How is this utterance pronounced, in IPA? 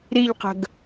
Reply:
ɾ i ʎ q ə̤ ɡ

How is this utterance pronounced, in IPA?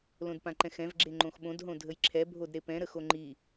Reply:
l õ d p ã ǃ ɛ̃ x ɛ̃ v ɡ͡ǁ e ŋ͡ǃ õ x ɓ õ d ɦ õ dʱ ə j ǁʰ ɛ bʱ o d ɾ e p ɛ̃ ɾ ə x o ŋ͡ǃ i

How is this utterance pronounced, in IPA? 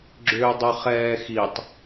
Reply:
ɡ͡ǁ ʏː dˤ ʏ χ ɛː x i tˤ

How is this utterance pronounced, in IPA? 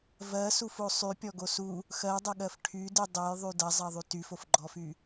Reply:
v ɜ s u f o sˤ y pʲ ɔ ɡ o s u | x ɜ dˤ ɐ ɠ ɜ f ʈʰ y d y dˤ o j ðˤ y d ɐ zˤ ɜ ðˤ y t y f o f ɡ͡ǃ ɔ f y

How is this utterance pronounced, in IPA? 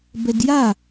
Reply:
b ɛ d j a

